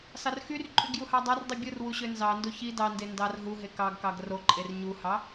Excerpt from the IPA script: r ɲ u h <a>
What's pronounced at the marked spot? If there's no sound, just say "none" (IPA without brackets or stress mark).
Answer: ɑ